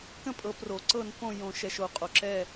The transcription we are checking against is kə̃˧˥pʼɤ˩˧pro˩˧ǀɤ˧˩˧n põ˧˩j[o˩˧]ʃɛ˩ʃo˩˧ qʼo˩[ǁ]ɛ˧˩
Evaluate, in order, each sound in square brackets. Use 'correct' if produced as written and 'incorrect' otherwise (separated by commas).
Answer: incorrect, correct